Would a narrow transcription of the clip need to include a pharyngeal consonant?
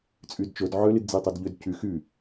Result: yes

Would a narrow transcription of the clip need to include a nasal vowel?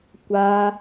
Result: no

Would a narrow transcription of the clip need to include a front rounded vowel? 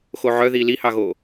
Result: yes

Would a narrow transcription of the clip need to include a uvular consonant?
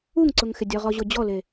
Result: yes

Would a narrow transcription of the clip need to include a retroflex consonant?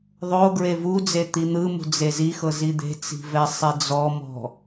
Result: no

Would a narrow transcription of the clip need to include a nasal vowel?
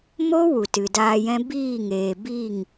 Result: yes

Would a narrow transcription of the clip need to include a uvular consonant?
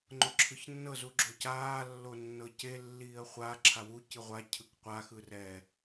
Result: yes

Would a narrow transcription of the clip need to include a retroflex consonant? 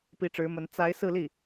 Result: yes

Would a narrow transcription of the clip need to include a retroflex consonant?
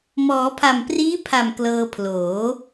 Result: no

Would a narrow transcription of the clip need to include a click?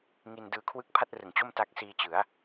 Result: no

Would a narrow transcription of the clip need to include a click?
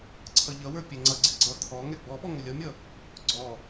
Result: yes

